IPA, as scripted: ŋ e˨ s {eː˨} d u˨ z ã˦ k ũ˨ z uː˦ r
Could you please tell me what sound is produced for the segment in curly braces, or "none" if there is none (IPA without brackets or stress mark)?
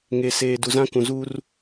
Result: eː˨